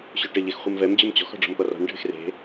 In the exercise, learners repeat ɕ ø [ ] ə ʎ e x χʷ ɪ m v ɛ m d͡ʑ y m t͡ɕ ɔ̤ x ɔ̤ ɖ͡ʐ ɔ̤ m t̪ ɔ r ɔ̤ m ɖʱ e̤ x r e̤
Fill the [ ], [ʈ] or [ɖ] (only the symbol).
ʈ